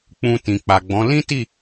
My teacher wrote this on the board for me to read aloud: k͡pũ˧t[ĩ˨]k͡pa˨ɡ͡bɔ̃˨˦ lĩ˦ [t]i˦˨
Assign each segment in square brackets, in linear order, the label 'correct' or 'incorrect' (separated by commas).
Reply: correct, correct